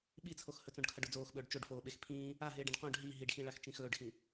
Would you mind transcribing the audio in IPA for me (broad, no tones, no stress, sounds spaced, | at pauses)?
ɓ i t͡sʰ o x h ɵ t͡s õ ɖ kʰ ɐ ɖ o d͡z oː x ɓ ɵː ɖ t͡ʃ o ɖ f oː ɓ e x pʰ ĩː | a ɦ eː ɖ ẽ ɖ q õ ɖ ɦ i ɦ i ɖ x ĩ ɭ a x t͡ʃ ĩ x ɵː ɖ x ĩ